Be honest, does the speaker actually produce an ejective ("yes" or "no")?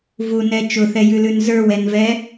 no